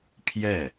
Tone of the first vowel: falling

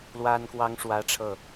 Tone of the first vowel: high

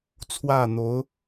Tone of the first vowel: falling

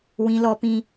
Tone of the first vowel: high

